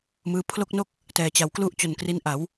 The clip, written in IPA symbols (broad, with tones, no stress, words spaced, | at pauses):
mɯː˦˥ pʰlo˥˩k̚no˥˩k̚ | tɛː˩˦t͡ɕa˩˦wklu˥˩ʔ t͡ɕo˨˩nkri˦˥nʔa˩˦w